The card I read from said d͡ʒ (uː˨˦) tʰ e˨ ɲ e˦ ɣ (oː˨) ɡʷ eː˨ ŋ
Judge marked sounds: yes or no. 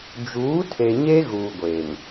yes, no

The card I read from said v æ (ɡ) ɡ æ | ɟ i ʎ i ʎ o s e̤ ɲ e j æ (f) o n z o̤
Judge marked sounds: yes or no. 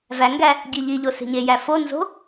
no, yes

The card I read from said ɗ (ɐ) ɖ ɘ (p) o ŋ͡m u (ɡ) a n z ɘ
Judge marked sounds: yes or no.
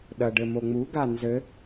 yes, no, yes

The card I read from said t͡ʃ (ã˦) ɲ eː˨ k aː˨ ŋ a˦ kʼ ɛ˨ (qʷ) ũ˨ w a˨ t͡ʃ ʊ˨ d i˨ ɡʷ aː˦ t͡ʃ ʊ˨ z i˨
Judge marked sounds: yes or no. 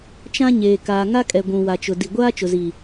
yes, no

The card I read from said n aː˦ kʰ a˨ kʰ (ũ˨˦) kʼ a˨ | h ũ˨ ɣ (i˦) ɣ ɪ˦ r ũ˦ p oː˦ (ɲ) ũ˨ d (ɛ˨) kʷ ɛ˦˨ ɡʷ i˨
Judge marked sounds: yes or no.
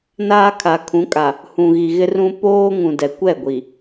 yes, no, no, yes

